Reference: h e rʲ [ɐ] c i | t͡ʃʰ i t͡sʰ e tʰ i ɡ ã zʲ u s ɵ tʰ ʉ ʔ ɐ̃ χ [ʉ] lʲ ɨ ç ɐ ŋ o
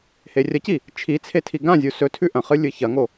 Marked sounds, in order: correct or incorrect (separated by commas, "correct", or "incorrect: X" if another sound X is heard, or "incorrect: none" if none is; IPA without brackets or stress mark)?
correct, incorrect: ɨ